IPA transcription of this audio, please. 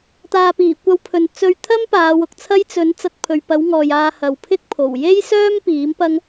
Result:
t̪ aː˨ p iː˨˩ kʷ ɐ˧ w pʰ ɵ˨ n t͡s ɵ˧ ɥ t̪ʰ ɐ˥ m p aː˨˧ w ʊ˨ k̚ t͡sʰ ɐ˥ j t͡s ɵ˨˥ n t͡s ɐ˧ t̚ pʰ ɵ˨ ɥ p ɐ˨˥ w ŋ ɔː˨ j aː˧ h ɐ˨ w pʰ ɪ˥ k̚ pʰ o˨˩ w j e˥ j s œː˥ m p iː˨˥ m p ɐ˥ ŋ

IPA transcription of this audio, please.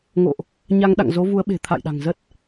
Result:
ŋ o̰˧˨ ʔ | ɲ a˧ ŋ ɗ a̰˧˨ ŋ z o˨˦ v u˨˦ ə̯ ɓ e̤˨˩ t̪ʰ a̰˧˨ j ɗ a̤˨˩ ŋ z ə˦˥ t̚

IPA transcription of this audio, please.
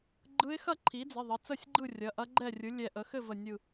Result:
ɡ͡ǃ ɯ˧˥ ɪ̯ x ɐ˥˩ ǃʰ i˩˥ d͡z i˩˧˩ ðˤ ə˩˧˩ t͡s ə˥˩ sʲ ɡ͡ǃ ɯ˥˩ rʲ ɐ˩˧˩ ʔ ɐ˧˥ ɡ͡ǃ ɛ˥˩ rʲ ɯ˩˥ lʲ ɛ˧˩ ʔ ə˩˥ x ɘ˥˩ v ə˧˩ nʲ ɯ˧˩

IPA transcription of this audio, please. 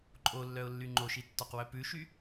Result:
ǃʼ o lː œ ʊ̯ lː y ŋ͡ǃ o ʃ i tː ɒ q w œ p ʉ ʃ y

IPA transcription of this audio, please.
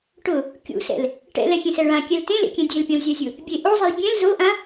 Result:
ʈ ʊ | kʲ ṵ s ɛ̰ l | ʈ ɛ̰ l ɛ xʲ ẽ s ɛ ɭ ã kʲ ɛ l t ẽ l ḛ kʲ ɛ̃ dʲ e l pʲ ɔ̃ l zʲ a zʲ ʊ | bʲ e ʔ o zˤ i l bʲ ɛ̃ l z o ʔ ã

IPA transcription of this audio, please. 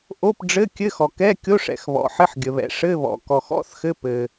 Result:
ʔ o˧˥˧ p ɖ͡ʐ ɘ˧˥˧ kʲ ɘ˧˥˧ x ɔ˩ k ɛ˧˥˧ kʲ o˧˥˧ ʂ ɛ̰˩ x β ɔ̰˩ ħ ɘ˧˥˧ ħ ɡʲ ə˩ β ɛ̰˩ ʂ ɘ˧˥˧ β ɔ̰˩ k ɔ˩ x ɔ̰˧˥˧ θ x ɘ˧˥˧ p ɘ˩

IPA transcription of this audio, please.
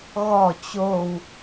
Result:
ɣ ɔ t͡ɕ o w

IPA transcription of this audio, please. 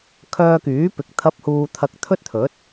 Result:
kʰ œː˧ k yː˨˥ p ɪ˨˥ k̚ t̪ʰ ɐ˨˥ p̚ h uː˨ t̪ʰ ɐ˧ k̚ t̪ʰ ɵ˥ t̚ t̪ʰ ɵ˨˥ t̚

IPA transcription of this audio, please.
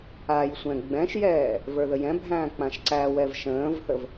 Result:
a j sʷ ɛ̃ ɡ͡b ɛ̃ ʃ j ɛː | v ə˞ ð ə j ɛ̃ bʱ æ̃ː k͡p ã ʃ ǀ æ w ɛ v ʃ ə̃ː v θ ə v

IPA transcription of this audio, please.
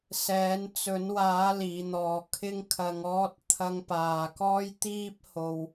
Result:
s ɛː˨˧ n t͡s ɵ˨˧ n w aː˨˧ l iː˨˧ n̪ ɔː˨ kʰ ɪ˥ ŋ kʰ ɐ˧ ŋ ɔː˧ t̚ t̪ʰ ɐ˧ ŋ p aː˨ k ɔː˥ j t̪ iː˧ p̚ h o˨ w

